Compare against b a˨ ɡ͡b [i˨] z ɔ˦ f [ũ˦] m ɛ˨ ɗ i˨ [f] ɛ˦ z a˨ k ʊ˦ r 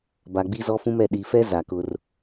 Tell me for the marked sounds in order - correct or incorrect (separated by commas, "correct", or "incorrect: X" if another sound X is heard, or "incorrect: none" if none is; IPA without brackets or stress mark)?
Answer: incorrect: i˦, correct, correct